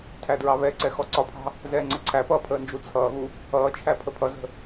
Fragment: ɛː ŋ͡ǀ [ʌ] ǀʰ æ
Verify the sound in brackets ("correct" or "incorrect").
correct